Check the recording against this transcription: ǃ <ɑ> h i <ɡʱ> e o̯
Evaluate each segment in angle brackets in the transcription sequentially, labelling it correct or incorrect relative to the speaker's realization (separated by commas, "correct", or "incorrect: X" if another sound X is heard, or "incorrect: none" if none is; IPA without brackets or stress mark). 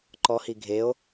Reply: incorrect: ɔ, correct